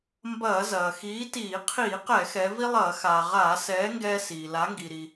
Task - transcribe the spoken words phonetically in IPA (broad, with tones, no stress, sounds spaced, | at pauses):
m b ɐː˧˩˧ z ɐː˩ x iː˨˥ t iː˧˩˧ qʰ iː˧˩˧ q ɛ˧˩˧ x ɛ˩˧ v i˦ lˠ ɐː˧˩˧ x aː˩ ʁ aː˧˩˧ s ɛː˨˥ ŋ ɡ ɛː˦ s iː˩ l a˨˥ ŋ ɡ i˩ ɾ i˩